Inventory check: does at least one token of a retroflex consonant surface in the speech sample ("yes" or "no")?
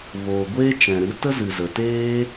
no